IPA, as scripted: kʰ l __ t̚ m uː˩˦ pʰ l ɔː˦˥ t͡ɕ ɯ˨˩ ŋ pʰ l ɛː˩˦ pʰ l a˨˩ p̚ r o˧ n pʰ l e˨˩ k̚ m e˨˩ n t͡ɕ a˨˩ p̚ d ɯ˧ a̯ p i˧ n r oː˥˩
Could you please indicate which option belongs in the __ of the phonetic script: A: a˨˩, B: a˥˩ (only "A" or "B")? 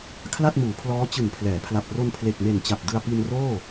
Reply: B